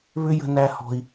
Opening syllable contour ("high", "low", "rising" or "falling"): high